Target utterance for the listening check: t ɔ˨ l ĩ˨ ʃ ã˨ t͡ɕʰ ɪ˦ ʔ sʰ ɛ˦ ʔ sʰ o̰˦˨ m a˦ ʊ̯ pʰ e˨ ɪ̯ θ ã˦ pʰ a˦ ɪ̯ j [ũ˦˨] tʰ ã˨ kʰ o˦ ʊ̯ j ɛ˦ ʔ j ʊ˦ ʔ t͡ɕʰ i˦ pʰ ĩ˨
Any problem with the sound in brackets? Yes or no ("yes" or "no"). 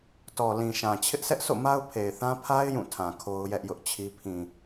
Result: no